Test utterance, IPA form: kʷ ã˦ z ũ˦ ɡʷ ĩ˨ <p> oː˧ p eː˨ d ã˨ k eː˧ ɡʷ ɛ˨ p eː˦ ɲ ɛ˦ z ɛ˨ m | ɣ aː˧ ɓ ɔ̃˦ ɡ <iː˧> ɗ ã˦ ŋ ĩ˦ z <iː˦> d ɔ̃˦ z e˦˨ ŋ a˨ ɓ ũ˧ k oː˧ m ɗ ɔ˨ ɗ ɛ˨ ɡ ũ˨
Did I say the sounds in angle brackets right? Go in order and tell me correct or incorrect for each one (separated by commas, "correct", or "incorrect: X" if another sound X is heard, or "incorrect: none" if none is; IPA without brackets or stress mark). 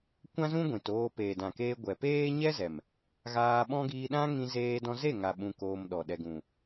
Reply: incorrect: t, correct, incorrect: eː˦